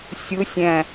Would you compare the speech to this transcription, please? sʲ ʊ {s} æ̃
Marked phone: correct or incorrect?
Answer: incorrect